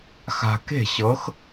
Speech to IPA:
x a̤˧ k e̤˥˨ ɕ ɤ˧˥ x

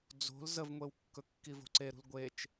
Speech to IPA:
d͡z o̤ l z ə v ŋʷ e w kː ɵ kː i v o̤ ǀ e ɾ ṳ l ɡʷ e t͡ʃ

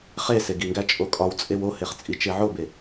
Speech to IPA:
χ e s e ɡ i ŋ ɡ æ t͡ʃʼ o kʼ ɒ w t͡sʼ e w o h e χ t͡sʼ i t͡ʃ e ʕ o b e

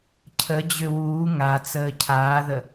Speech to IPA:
cʰ ə d͡ʑ ø w uː ŋ a t͡s əː cʰ aː ð ə

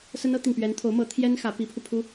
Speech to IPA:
s ə˥ n ɤ˥ t̪ i˨ ŋ p ɥ ɛ˧˥ n t̪ʰ o˧˥ ʊ̯ m ɤ˧˥ t̪ʰ j ɛ˥ n x ä˧˥ p i˧˥ pʰ u˧ pʰ u˥

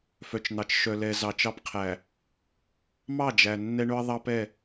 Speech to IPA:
f œ˨ t͡ʃ n̪ ɑ˨ t͡ʃ ʃ œ˨ l ɛ˨ z ɑ˨ t͡ʃ ɑ˦ p qʰ æ˨ | m ɑ˦˨ d͡ʒ æ˨ nː ɛ˦ ɳ ɵ˦ ə̯ ðˤ ɑ˦ p ɛ˦˨

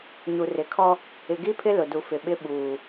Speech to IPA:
ɲ u˨ r ɪ˨ kʰ ɔ˦ | ɪ˨ ɡ i˦ pʰ ɪ˦ l ʊ˨ d u˨ f ɪ˨ ɓ ɪ˦ ɓ uː˨

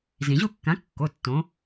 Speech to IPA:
z ĩ˩ ʑ u˥˨ kː ã˨˥ kː o˩˧˩ tː õ˩˧

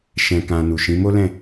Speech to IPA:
ʃ ɛ̃˨ k ã˨ n u˨ ʃ ĩ˨˦ m o˦ l ɛ̃˦˨

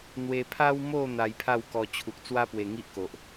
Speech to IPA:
n̪ w e˧ pʰ a˦ w m o˥˧ n̪ a˧ j pʰ a˥˧ w k ɔ˧ t͡ɕʰ u˨ k̚ t͡s w a˦ p w e˨˩ ŋ i˦ ʔ k o˨ ʔ

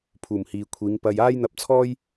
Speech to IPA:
pʰ uː˨˩ m h iː˨ kʷʰ iː˨˧ ŋ p ɐ˧ j aː˥ j n̪ ɐ˧ p̚ t͡sʰ ɔː˥ j

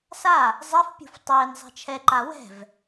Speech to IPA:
s a | zˤ e f pʲ ṳ f tˤ ɪː n zˤ ɛ̤ t͡ʃʰ ɛ ǃ a w ɛ̤ v

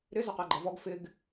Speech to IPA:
ɾ ɪ z ə q æ ɡ͡ǃ ʌ v ɔ ɡ f ɪ ɡ

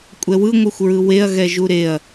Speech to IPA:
kʷʼ ɛ w ɯ ŋʷ ɯ xʷ ɹ ɯ w e ɐ̯ ɣ ɛ ʒ u ɾ e ɐ̯

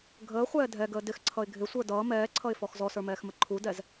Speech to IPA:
ɡʱ əː χʷ ɛː dʱ ɛ ɡ əː d ɪ x ǀʰ ʌ ɪ̯ ɡʱ ɪ sʷ ə˞ d ʌː m ɛː ǀʰ ʌ ɪ̯ f ɔ x z ɔ s ə˞ m ɛː x m ə ǃʰ u d ɛ z

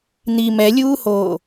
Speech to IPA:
n̪ i m ɛ lʲ uː h oː

